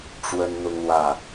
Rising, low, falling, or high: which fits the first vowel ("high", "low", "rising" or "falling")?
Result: high